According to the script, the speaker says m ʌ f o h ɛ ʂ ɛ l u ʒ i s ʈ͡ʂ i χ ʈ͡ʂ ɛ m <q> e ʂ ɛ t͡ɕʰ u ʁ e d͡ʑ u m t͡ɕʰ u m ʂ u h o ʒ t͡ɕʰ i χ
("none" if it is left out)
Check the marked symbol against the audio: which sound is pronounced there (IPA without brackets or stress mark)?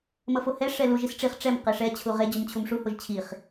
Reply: q